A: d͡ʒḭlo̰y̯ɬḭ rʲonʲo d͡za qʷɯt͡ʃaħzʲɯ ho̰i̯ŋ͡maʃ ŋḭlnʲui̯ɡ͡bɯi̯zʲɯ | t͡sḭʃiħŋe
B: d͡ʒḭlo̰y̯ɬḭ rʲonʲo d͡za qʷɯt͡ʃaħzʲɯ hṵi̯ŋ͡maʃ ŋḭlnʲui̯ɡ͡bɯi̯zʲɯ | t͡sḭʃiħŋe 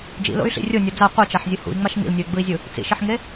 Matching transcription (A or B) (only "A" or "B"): B